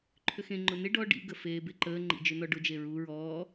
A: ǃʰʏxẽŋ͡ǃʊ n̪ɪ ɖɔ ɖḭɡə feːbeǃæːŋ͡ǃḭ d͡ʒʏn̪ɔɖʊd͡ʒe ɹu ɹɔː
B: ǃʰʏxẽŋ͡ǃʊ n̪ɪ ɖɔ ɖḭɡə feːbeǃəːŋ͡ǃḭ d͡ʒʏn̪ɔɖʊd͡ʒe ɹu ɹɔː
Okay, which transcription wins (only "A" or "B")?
B